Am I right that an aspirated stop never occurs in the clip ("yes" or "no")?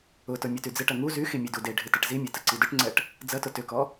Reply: yes